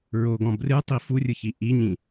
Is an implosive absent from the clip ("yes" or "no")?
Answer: yes